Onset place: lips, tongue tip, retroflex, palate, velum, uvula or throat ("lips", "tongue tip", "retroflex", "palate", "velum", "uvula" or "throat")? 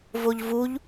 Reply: lips